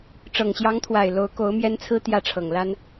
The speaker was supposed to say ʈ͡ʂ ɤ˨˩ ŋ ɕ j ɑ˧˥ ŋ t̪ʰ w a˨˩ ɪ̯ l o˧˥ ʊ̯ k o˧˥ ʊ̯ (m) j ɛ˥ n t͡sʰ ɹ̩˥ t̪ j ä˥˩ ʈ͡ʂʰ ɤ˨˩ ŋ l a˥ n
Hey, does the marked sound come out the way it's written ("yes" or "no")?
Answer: yes